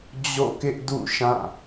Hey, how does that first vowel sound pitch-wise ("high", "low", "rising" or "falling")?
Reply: falling